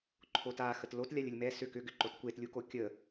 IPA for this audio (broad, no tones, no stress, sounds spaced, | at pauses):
ǃʰ o t a x ə t l o t lʲ a lʲ ə lʲ m ɛ s ʏ k ʏ ɡ ʏ ǃ o t kʷ e t lʲ u k o kʲ ə